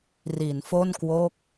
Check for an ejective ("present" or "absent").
absent